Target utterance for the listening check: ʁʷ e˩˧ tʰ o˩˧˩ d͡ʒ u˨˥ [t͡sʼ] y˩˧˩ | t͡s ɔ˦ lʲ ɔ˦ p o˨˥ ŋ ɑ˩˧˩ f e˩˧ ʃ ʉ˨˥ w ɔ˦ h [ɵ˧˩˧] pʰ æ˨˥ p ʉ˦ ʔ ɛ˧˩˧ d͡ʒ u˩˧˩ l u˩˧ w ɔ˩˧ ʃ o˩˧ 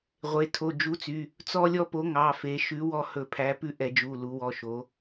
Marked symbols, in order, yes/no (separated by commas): no, yes